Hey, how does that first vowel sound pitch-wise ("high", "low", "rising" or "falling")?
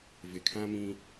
low